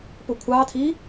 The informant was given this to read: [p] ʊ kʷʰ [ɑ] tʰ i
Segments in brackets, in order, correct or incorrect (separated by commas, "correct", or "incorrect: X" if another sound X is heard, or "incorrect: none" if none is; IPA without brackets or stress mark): correct, correct